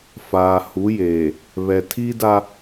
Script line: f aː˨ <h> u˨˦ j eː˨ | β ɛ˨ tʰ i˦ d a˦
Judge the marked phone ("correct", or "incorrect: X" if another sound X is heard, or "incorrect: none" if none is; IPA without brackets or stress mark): correct